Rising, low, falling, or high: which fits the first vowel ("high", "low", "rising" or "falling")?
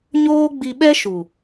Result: high